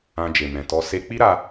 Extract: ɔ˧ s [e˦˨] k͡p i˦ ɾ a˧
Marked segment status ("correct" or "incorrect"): incorrect